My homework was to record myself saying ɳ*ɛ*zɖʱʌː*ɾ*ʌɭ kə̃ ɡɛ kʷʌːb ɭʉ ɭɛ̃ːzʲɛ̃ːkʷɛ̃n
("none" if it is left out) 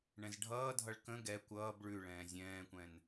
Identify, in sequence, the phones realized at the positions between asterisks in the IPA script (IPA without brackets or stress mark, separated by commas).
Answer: ɛ̃, dʱ